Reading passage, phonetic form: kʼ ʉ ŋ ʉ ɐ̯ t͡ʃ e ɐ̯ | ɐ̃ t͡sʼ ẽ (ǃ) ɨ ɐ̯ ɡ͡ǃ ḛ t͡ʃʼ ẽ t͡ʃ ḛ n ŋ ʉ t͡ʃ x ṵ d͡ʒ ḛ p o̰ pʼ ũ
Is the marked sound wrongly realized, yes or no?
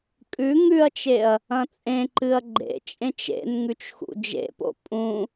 no